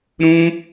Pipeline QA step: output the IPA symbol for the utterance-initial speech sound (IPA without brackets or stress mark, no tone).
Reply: ɾ